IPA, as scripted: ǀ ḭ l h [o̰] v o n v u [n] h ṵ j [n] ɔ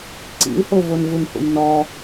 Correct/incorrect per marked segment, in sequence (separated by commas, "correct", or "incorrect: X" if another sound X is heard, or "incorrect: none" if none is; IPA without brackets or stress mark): incorrect: o, correct, correct